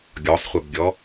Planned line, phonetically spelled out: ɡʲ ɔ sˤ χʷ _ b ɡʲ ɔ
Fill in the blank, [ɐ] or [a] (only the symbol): ɐ